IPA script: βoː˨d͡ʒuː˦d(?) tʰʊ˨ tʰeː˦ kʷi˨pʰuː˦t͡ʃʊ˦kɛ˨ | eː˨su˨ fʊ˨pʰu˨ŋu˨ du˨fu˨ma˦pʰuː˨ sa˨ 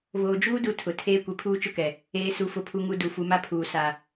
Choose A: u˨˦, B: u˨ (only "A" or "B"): A